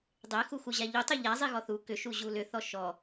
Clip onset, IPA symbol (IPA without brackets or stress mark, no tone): dˤ